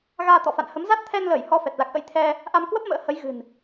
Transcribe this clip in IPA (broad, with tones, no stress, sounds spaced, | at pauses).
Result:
ɣ aː˧ t̪ ɔ̰˧˨ f a̰˧˨ n h ə˨˦ m z a˦˥ t̚ t̪ʰ ɛ˧ n l əː˧˩ j h ɔ˧ f ɛ˨˩ t̚ l a˨˩ k̚ ʔ ə̰˧˥ j t̪ʰ ɛ˧ | ʔ a˧ m k w ə˦˥ p̚ m ə̰ː˧˥ h ə˨˦ j ɣ ɨ̤˨˩ n